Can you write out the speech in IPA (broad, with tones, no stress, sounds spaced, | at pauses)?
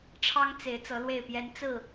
ʈ͡ʂʰ ɑ˦ ŋ t͡s e˨˦ ɪ̯ t͡s ɤ˨˦ l w e˥˨ ɪ̯ p j ɛ˦ n t͡s ɹ̩˥˨